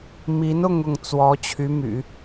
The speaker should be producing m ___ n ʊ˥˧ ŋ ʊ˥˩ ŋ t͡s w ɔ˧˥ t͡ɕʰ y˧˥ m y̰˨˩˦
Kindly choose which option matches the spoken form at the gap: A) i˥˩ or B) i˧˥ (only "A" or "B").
B